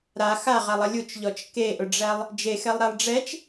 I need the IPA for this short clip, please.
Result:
ɾ a x a ʁ a lˠ ɐ lʲ u t͡ʃ ʎ ɔ t͡ʃ k e ʔ ʊ ɖ͡ʐ æ lˠ | d͡ʒ e x ɛ lˠ ɾ æ lˠ ɖ͡ʐ ɛ t͡ʃ

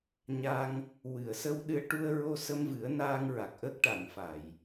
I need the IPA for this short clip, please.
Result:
ɲ a˧ ŋ | w ɨ˨˩˨ ə̯ s ə˧ w ɗ ɨ˧ ə̯ ʈ u˧ ə̯ ɹ o˧ s ə˧ m v ɨ˨˩˦ ə̯ n aː˧ ŋ ɹ a˨˩ k̚ ʔ ə˦˥ k̚ ʈ a˨˩˨ ŋ f a˨˩˨ j

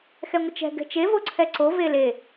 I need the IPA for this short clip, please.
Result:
x ɛ ŋʷ ə t͡ʃ ɛ̤ ɡ ɛ̤ t͡ʃ e v o ǀʰ ɛ ǀ o v e l e

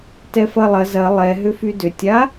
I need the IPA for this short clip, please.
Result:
t ɛ f ɐ lˠ ɐ z ɐ lˠ ɛ ɦ ʏ f y d ʏ tʲ a

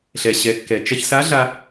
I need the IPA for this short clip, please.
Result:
ɬ ɛ˩ ɕ ɛ˩˧ kː ɛ˩ t͡ʃ ɐ˧ ç s a˧˥ ɮ a˧

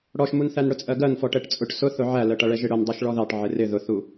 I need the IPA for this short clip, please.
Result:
ɽ ɔ ʃ m u n θ æ n ɽ ʊ t͡sʼ ɜ ɡ ɜ n f ɔ ʈ ɛ ʈ t͡sʼ ʊ ʈ s ʊ θ ʊ ʕ æ l ɜ ʈ ʌ ɭ ɛ ʒ ɪ ɽ ʊ n dˤ ʌ ʃ ɭ ɔ ð ɑ ʈ ʕ ɪ r ɪ ð ʊ θ u

